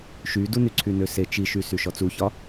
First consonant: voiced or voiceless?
voiceless